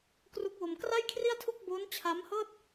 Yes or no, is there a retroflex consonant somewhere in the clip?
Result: no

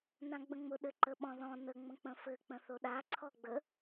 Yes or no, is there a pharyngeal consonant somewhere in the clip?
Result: no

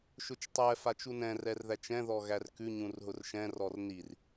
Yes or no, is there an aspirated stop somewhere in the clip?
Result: no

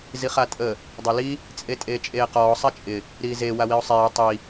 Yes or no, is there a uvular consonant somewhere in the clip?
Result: yes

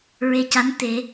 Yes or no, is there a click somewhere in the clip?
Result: no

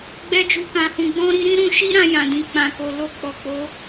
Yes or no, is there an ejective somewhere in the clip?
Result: no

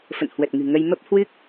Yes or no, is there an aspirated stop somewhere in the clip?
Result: no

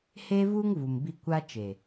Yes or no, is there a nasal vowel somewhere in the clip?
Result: no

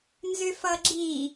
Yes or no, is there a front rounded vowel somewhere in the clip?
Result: yes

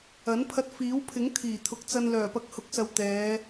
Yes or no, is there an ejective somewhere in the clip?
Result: no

